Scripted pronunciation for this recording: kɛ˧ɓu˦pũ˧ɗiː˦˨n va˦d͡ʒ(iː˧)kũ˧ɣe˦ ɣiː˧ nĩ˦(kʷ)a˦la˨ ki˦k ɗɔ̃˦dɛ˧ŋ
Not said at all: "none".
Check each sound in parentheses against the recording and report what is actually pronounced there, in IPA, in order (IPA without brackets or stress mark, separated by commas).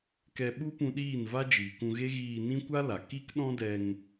iː˨, kʷ